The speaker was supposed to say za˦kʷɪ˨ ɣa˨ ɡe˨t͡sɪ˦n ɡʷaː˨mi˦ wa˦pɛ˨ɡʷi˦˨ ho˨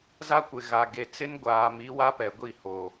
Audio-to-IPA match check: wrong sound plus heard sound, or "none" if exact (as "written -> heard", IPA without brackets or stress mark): none